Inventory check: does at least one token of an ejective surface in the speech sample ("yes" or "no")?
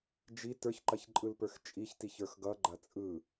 yes